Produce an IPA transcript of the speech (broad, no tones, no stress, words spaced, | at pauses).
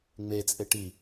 ŋ͡me t͡sʼeʈi